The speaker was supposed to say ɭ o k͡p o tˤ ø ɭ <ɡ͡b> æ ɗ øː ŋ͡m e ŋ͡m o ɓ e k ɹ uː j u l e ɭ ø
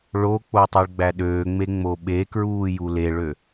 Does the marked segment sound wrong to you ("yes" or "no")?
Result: no